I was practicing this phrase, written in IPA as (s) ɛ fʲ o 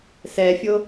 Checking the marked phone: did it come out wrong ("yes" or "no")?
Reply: no